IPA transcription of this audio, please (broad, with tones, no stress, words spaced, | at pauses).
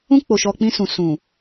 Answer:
ũ˧k͡po˨ʃɔ˨ k͡pĩ˧ sũ˨ sũ˨